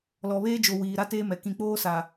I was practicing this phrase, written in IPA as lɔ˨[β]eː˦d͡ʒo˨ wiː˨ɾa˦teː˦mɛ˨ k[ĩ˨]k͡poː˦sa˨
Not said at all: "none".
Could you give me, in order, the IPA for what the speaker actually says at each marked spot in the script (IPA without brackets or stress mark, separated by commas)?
β, ĩ˨